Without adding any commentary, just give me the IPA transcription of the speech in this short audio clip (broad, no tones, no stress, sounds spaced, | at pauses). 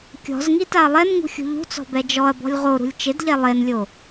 kʲ ɔ̤ z ŋ i t a ɐ̯ lˠ ɛ n ŋ ṳ xʲ ṳ ʎ ṳ t͡s ɔ̤ b ɛ d͡ʒ ɔ ɐ̯ b ɔ̤ lʲ ʁ o ɾ ṳ lʲ t͡ʃ ɪ d ʎ ɛ lˠ e n lʲ o